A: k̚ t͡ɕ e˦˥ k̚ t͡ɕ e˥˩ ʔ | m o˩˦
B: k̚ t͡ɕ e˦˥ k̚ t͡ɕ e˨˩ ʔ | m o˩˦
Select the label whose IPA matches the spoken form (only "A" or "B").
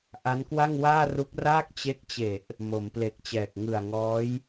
B